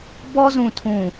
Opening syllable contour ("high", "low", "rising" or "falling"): high